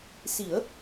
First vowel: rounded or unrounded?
unrounded